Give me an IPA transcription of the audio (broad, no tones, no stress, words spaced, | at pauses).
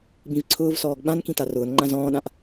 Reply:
bĩvǀʰʊːvsɔːɡ ɓãnkĩ tarʊːnŋ͡ǃã zɔ̃ːɗãʔ